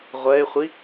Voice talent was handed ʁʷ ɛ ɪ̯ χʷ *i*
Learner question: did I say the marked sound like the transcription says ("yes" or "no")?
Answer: yes